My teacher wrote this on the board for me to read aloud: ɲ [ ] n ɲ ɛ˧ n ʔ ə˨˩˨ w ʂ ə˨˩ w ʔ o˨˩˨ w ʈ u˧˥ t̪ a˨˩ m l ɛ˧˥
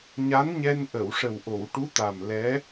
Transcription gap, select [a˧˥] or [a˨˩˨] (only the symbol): a˧˥